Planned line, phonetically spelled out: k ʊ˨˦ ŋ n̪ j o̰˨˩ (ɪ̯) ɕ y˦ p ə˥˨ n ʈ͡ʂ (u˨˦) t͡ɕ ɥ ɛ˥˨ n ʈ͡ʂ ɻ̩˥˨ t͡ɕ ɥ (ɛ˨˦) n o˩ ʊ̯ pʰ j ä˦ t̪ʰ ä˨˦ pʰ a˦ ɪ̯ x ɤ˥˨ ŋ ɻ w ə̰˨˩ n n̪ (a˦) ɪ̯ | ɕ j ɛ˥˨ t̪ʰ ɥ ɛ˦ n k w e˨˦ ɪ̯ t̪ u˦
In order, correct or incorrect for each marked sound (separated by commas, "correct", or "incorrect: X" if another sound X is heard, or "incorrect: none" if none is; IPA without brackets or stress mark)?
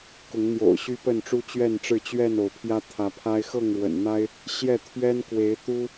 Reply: incorrect: ʊ̯, incorrect: u˦, incorrect: ɛ˥˨, correct